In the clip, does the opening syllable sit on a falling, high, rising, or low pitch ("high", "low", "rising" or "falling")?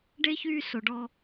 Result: high